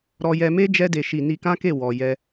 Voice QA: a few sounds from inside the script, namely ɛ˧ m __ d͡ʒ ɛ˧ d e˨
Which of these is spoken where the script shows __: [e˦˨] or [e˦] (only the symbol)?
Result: e˦